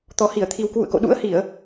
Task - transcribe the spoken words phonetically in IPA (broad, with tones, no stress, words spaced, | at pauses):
t̪ɔ˨˩hi˧˩ə̯t̪ʰi˨˩w kwṵ˧˨ə̯ko̰˧˨ɗṵ˧˥ə̯ hi˧˩˨ə̯